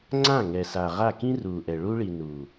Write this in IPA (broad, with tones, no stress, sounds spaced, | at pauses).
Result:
ŋ͡ǀ ã˦˨ ŋ ɛ˨ s a˨ ʁ a˦˨ k ĩ˦ r uː˨ ʔ ɛ˨ ɭ u˧ ɭ i˨ n uː˨